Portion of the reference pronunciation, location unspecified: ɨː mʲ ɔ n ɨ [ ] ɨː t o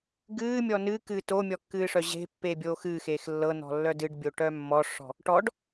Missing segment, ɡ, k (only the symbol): k